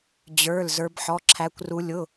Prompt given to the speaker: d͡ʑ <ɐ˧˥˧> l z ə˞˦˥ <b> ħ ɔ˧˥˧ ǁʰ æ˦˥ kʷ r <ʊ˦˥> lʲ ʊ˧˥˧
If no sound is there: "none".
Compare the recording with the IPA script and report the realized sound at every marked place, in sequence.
ə˞˧˥˧, b, u˦˥

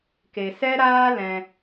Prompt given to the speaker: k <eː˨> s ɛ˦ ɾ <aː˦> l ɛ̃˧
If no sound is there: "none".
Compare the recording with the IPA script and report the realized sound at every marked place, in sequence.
e˨, aː˦

